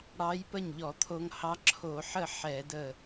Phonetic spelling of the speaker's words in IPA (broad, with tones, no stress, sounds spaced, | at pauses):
ɽ ɑ˧˥ j p ə˥˩ ɲ ʎ ɔ˧˩˧ t̪ʰ o˧ ŋ h ɑ˧˥ ǁʰ o˧˩˧ ħ ə˥˩ ħ ɛ˧˩˧ d ə˧˩